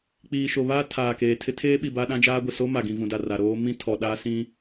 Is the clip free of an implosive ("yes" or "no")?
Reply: no